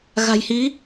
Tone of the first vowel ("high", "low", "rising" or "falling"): low